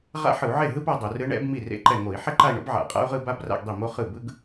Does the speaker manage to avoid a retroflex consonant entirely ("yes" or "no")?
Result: no